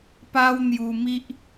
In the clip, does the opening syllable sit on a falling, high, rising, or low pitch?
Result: high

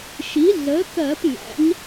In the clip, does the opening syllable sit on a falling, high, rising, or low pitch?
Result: rising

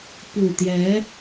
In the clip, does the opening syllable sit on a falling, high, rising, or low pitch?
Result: low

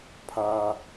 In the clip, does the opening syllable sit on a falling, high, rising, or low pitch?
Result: high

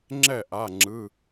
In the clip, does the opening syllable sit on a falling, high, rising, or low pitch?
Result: falling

